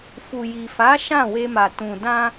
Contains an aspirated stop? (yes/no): no